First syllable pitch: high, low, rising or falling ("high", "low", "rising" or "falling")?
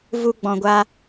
high